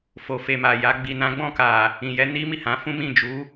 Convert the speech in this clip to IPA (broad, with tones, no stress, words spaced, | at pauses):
fo˨fe˨ma˨ja˨˦ ɡ͡bi˧nã˦ ɡ͡bɔ̃˦˨ka˨ | ĩ˨jɛ˨˦ ni˦mi˦˨hã˨˦fũ˦ mĩ˦˨ d͡ʒu˨˦